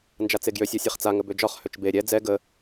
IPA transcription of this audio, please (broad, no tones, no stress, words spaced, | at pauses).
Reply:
nd͡ʒat͡seɡjøsʲ ɒsʲɛχt͡sa ŋəbød͡ʒɒχ høt͡ʃbe ɾʲɛ d͡zɛ ɡə